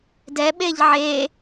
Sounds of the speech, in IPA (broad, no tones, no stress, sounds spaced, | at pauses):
d ɛ ɓ e ʎ ʕ e